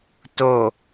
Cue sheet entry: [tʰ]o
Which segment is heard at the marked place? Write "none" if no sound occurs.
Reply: t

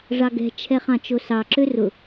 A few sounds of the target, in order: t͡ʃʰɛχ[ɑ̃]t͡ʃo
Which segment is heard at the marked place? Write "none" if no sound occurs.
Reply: ɑ̃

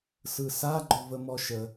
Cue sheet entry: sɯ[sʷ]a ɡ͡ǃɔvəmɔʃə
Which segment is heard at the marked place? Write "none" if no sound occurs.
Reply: s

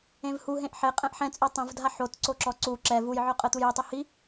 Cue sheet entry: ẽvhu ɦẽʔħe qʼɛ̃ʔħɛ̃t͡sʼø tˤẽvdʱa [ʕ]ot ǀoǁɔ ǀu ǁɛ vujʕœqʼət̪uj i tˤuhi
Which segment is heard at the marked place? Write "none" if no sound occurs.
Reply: ħ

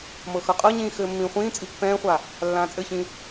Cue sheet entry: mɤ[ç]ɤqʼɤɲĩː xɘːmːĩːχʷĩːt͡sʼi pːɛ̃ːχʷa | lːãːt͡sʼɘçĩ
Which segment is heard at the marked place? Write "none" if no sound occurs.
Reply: x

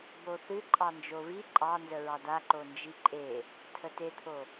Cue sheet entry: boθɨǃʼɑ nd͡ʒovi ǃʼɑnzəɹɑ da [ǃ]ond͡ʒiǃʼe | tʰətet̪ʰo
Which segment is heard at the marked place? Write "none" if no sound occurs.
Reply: ǃ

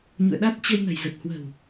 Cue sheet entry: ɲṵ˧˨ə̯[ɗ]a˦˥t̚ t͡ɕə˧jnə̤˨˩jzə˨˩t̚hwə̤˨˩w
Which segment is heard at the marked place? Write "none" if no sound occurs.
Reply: ɗ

